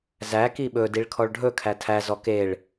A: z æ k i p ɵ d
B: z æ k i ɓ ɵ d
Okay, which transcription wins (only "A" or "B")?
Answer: B